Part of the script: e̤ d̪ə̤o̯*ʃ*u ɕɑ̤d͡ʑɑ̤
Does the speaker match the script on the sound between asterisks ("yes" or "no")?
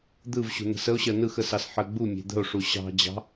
no